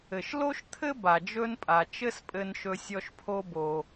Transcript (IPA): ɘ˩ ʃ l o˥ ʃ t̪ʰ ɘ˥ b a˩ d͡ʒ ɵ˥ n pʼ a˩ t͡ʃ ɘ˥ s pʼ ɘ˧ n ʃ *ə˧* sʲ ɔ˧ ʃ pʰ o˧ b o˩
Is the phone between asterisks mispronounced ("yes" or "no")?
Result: yes